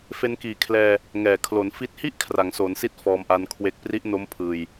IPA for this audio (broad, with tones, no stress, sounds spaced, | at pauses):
f e˧ n k iː˨˩ kʰ l ɛː˧ | ŋ ɛː˨˩ kʰ l o˩˦ n f i˦˥ t̚ h i˦˥ ʔ kʰ r a˩˦ ŋ s oː˩˦ n s i˦˥ t̚ f ɔː˧ m ʔ a˦˥ n kʰ w e˦˥ k̚ p r i˦˥ ʔ n o˦˥ m pʰ ɯː˧ j